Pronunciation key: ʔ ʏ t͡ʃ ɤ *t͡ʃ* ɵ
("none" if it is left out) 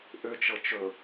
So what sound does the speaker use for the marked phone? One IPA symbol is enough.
t͡ʃ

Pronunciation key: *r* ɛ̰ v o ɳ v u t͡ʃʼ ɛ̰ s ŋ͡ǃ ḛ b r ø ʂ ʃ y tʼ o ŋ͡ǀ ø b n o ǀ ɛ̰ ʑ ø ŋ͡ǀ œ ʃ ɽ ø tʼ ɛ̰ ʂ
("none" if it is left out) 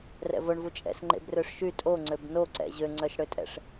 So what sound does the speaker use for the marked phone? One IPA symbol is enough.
r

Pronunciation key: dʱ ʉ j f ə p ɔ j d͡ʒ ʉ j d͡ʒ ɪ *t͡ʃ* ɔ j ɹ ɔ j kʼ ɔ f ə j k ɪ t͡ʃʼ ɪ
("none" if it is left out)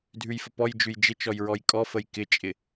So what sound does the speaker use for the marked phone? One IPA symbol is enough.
t͡ʃ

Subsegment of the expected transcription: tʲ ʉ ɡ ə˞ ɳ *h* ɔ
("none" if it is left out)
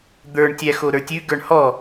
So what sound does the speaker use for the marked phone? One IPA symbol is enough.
h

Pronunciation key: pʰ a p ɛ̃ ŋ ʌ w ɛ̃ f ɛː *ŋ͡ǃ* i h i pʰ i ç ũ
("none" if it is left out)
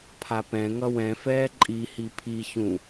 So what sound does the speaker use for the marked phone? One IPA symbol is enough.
ǃʼ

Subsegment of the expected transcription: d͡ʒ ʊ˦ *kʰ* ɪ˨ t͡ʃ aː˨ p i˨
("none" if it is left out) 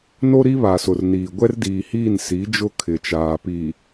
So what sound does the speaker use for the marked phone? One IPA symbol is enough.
kʰ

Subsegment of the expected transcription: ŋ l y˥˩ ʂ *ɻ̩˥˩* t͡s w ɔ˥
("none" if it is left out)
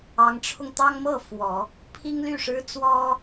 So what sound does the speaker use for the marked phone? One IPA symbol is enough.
ɻ̩˥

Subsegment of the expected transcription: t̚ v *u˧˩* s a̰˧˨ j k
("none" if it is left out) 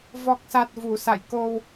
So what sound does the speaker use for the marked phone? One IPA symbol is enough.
u˧˩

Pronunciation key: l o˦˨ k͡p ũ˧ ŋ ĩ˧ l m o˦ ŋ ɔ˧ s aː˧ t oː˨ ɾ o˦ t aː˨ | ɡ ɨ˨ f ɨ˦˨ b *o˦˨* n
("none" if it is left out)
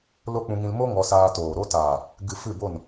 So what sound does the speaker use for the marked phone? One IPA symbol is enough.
o˦˨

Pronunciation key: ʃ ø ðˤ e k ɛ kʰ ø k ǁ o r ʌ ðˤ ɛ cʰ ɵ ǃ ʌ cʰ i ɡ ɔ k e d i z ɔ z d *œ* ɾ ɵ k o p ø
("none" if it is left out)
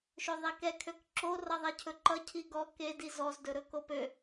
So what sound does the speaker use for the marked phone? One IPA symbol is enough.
ɵ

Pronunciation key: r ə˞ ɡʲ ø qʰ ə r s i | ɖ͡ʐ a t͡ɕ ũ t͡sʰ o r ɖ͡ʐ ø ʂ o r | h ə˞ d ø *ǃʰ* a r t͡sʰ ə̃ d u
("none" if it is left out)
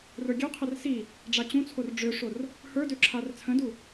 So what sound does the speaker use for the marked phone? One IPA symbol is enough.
ǁʰ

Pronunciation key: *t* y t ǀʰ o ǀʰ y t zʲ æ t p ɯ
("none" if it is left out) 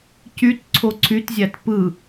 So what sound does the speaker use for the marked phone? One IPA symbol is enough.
c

